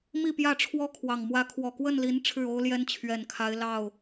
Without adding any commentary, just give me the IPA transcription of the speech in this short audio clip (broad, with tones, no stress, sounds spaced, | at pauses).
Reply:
m i˥˨ p j ä˥˨ ʈ͡ʂʰ w ɔ˦ kʰ w ɑ˨˩ ŋ m w ä˨˦ kʰ w ɔ˨˩ k w ə˥˨ n l i˨˦ n ʈ͡ʂʰ ɻ̩˥˨ o˦ ʊ̯ l j ɛ˦ n t͡ɕʰ ɥ ɛ˨˩ n kʰ a˨˦ ɪ̯ l ɑ˥˨ ʊ̯